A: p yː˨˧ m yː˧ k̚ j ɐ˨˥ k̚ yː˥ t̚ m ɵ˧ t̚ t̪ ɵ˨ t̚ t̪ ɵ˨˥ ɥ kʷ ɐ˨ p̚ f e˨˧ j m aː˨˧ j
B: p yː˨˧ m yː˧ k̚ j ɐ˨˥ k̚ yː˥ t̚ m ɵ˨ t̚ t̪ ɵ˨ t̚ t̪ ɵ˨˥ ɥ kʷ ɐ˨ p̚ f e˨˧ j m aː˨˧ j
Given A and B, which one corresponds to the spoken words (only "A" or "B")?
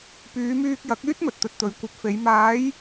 B